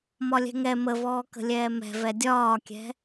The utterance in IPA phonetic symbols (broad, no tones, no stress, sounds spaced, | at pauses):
m ɒ lʲ ɛ̤ ŋ ɛ m ə v ɔː k ə̤ lʲ ɛː m ɛ̤ v ɛ dʲ ɒː kʲ ɛ̤